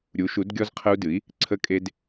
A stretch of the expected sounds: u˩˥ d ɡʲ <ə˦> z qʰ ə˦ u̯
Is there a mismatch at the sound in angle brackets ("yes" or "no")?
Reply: yes